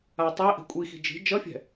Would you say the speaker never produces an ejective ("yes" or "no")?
no